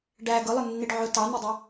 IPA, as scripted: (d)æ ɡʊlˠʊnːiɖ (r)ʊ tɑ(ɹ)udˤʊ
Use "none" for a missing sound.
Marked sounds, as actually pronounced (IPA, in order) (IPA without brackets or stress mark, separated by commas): ɖ, ʕ, n̪